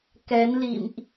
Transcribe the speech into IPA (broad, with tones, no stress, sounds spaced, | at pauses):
k ɛ˨˦ n l ḭ˧˨ m ʔ